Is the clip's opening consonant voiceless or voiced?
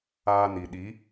voiced